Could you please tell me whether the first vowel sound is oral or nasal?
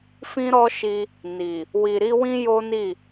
nasal